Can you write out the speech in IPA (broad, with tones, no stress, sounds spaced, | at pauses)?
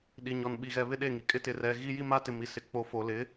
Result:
ɗ i˨ ɲ ɔ˨ n ɓ i˨ ɣ ɛ˨ β ɪ˦ ɗ e˦˨ ŋ i˨ kʼ ɪ˦ t ɪ˨ r ɛ˨ ɣ i˦ j i˦ m a˦ t ɪ˨ m i˨ s ɪ˨ k͡p o˨ f o˨ l ɪ˨˦